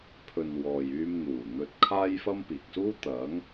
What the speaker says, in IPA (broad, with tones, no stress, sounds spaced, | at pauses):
pʰ ɵ˨ n w ɔː˨ j yː˧ m n̪ uː˨˩ n̪ ɵ˧ t̚ kʰ aː˥ j f ɐ˥ m p iː˨ k̚ s uː˥ t̪ ɐ˨˥ ŋ